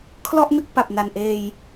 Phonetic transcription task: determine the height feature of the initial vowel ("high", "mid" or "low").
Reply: mid